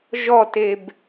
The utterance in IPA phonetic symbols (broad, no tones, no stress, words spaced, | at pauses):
ʒɔteb